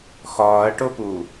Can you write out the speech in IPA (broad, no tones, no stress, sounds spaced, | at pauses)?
x ɒː ɐ̯ ʈ o p u